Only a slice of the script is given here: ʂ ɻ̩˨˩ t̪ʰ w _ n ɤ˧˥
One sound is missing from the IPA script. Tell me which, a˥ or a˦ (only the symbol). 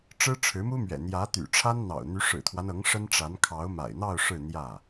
a˦